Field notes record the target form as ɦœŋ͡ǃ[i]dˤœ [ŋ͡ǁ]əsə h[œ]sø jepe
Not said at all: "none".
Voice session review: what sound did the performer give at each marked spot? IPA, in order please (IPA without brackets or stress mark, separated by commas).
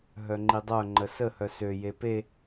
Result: i, ŋ͡ǃ, œ